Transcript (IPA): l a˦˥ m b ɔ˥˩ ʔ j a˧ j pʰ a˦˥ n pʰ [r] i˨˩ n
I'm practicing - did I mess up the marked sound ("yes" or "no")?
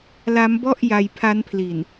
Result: yes